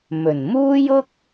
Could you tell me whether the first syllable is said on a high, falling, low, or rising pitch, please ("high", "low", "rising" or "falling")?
low